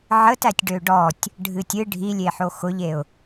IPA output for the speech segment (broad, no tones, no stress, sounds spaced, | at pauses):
ʕ ə t æ tʲ ɖ ø ɖ ɔ tʲ | ɖʱ ɨ tʲ ɨ ɖʱ i lʲ e ħ o x ʊ ʎ e ʊ̯